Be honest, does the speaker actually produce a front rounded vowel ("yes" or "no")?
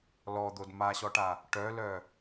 yes